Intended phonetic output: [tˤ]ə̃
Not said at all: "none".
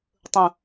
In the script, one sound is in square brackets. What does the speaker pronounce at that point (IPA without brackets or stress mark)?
tˤ